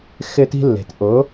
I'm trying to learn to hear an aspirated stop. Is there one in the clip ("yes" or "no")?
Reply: no